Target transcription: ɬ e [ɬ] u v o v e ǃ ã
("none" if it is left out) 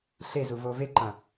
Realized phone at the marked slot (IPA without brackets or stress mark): z